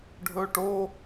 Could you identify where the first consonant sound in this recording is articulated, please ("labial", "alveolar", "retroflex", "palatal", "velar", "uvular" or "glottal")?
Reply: retroflex